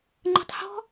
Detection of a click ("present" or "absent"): present